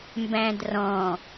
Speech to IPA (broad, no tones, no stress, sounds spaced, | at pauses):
m b æ̃ d r ɔ̃